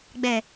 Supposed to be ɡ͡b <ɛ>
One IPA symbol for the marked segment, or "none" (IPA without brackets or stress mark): ɛ